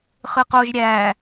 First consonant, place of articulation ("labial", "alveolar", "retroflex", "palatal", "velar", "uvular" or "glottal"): uvular